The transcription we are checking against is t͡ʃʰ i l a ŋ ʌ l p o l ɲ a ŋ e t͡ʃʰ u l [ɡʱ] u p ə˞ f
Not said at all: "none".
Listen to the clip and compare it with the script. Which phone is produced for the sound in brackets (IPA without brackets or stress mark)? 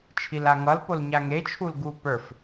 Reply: ɡ